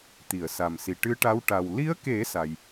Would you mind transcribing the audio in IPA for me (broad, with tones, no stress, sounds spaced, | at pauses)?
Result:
t̪ i˨˩˨ ə̯ s a˨˩ m s i˨˩ ʈ ɨ˧˥ ʈ a˧˥ w ʈ a˨˩ w l i˧˥ ə̯ k e˨˩˦ s a˨˩ j